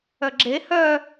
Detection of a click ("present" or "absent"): present